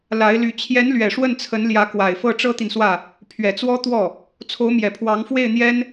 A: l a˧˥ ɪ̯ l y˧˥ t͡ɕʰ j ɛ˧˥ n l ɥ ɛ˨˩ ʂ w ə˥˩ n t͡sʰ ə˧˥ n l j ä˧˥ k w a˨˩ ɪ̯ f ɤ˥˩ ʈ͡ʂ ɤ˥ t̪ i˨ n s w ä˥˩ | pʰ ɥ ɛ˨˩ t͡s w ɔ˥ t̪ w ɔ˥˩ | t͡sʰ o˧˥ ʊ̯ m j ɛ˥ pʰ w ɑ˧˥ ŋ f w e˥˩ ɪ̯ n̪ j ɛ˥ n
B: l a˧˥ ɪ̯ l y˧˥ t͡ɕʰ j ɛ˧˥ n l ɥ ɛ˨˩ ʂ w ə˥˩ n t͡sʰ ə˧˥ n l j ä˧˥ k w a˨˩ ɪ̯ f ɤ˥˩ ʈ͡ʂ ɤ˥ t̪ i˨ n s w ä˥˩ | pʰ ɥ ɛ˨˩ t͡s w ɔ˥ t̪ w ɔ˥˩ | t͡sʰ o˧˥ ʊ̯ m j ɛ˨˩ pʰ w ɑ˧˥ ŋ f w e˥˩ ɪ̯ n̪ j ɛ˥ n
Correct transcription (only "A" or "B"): B